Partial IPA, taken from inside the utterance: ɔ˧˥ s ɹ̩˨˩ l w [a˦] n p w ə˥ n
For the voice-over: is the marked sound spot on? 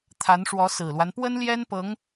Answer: yes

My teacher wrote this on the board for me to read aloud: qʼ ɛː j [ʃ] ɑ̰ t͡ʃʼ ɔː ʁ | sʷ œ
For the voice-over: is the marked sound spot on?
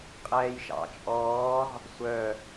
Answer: yes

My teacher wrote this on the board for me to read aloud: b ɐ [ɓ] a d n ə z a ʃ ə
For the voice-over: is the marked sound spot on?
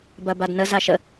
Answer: no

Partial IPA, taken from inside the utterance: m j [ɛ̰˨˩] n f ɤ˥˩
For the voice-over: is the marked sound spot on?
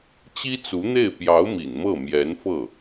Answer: no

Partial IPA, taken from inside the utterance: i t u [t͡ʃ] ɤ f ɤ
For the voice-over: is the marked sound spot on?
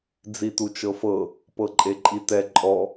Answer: yes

